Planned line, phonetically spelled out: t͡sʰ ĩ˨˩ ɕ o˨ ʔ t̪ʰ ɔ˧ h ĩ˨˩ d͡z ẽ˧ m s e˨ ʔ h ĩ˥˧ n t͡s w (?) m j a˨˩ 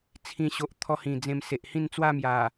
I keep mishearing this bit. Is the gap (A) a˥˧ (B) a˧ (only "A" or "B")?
A